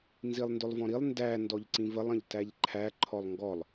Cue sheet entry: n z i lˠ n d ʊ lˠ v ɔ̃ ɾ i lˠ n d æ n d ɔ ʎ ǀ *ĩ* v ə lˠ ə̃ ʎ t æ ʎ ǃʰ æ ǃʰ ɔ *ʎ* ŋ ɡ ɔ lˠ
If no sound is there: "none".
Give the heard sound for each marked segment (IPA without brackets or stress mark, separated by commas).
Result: ĩ, lˠ